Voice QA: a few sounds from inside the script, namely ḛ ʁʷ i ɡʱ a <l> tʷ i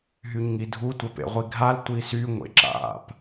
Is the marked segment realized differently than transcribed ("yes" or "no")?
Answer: no